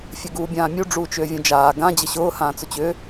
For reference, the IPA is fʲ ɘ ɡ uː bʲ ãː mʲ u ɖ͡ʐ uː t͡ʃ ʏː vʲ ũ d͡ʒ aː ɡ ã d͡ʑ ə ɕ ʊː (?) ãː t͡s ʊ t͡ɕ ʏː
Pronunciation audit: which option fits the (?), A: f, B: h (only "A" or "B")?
B